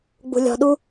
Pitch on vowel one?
low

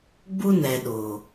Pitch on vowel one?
high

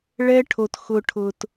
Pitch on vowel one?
high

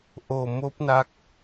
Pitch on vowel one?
low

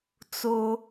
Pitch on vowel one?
high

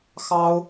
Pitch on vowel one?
high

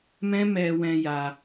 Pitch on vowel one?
high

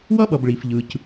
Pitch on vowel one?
high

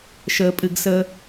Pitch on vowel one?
low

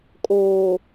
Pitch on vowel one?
low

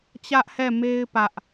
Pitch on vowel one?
high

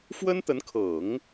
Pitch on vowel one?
high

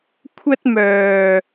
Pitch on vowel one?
high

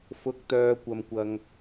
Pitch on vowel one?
rising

